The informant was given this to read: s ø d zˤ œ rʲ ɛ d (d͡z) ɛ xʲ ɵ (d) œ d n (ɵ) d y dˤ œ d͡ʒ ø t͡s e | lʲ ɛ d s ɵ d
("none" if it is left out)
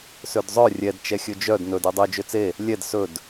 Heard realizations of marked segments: t͡ʃ, d͡ʒ, ɵ

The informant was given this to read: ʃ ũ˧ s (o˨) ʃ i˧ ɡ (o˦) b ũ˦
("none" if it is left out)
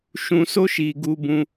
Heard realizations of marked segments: o˦, u˦

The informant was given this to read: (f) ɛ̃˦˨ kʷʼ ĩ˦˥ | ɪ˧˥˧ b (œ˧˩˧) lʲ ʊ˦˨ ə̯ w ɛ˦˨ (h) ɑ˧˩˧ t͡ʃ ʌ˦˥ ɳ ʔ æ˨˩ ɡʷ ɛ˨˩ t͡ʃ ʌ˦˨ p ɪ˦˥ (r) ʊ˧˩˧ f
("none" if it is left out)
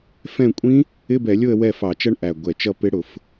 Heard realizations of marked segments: f, ɛ˧˩˧, f, ɽ

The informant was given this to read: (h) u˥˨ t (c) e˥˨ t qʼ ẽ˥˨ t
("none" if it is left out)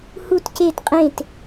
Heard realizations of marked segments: h, c

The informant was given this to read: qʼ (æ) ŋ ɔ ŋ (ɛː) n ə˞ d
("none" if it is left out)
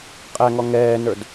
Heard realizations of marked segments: æ, ɛː

